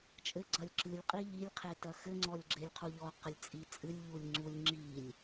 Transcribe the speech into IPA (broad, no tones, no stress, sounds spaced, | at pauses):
t͡ʃʼ ɘ ɡ͡ǀ ɐ lʲ ǁ ɨ lʲ qʼ i ʎ i lʲ qʰ e t ɐ x ɘ ŋ͡ǀ ɔ lʲ ɡ͡ǁ e lʲ qʰ u ʎ ɔ q ɘ lʲ t͡sʼ i t͡sʼ ɨ lʲ ʎ u lʲ ŋ͡ǀ u lʲ ŋ͡ǁ i lʲ